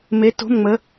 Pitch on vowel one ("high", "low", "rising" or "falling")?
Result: rising